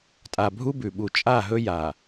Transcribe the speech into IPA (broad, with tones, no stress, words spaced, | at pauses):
tʼa˨bʱu˦bʉ˨ɓu˨ t͡ʃʼa˦˨ɦɵ˦ ja˨